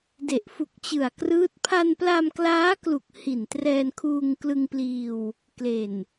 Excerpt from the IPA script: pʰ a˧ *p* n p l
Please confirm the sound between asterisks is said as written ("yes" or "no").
no